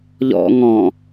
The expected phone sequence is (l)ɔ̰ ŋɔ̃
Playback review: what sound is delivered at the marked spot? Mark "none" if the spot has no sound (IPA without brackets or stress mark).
ʎ